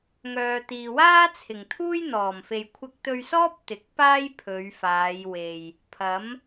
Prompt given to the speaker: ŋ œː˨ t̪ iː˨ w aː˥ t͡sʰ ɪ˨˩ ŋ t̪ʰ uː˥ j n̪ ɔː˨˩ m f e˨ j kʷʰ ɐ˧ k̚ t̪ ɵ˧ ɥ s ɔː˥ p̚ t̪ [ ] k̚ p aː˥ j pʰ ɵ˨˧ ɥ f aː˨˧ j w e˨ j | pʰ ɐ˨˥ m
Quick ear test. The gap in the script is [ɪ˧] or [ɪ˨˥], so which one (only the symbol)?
ɪ˨˥